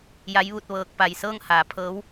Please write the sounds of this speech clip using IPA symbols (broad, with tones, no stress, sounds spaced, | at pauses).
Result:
j a˧˥ j ʋ u˧ t̚ ʋ ɤː˧ k̚ p a˧ j s ɤː˥˨ ŋ h aː˩˧ pʰ ɤː˧˥ w